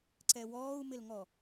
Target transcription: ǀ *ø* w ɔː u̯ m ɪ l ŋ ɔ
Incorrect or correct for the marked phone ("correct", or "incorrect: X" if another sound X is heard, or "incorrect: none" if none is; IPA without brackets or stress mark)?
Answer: incorrect: ɛ